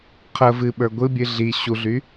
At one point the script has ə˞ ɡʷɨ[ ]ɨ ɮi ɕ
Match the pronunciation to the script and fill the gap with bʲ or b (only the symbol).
bʲ